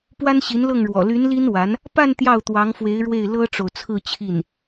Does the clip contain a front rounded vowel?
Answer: yes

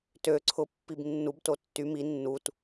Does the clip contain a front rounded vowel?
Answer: yes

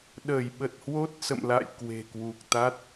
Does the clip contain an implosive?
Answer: yes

